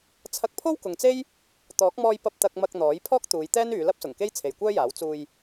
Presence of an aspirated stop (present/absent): present